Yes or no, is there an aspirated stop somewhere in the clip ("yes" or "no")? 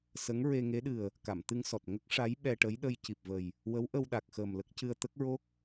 no